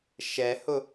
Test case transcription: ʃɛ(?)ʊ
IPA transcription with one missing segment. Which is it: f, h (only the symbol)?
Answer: h